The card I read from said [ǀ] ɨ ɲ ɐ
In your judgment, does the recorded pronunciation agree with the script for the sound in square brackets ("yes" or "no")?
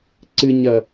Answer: yes